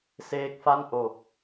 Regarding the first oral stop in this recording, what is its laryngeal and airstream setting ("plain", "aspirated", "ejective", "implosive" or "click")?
plain